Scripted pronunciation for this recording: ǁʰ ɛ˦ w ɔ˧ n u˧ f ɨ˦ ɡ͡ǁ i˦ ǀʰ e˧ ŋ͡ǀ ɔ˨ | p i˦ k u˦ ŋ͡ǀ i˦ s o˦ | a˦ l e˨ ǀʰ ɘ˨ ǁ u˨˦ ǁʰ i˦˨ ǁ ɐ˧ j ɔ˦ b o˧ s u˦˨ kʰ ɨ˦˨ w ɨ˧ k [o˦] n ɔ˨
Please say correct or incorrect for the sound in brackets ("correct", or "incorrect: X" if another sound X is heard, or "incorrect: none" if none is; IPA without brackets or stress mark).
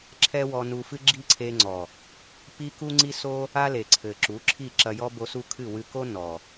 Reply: correct